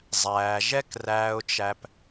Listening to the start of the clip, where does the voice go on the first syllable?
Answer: low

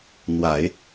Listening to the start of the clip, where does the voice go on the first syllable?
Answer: low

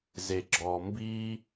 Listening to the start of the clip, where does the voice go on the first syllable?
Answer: low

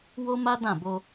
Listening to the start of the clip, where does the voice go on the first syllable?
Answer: high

